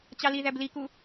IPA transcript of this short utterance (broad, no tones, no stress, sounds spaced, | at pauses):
t͡ɕ ɑ l i ð æ b l i k u